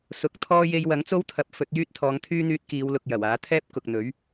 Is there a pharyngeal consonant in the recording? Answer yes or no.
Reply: no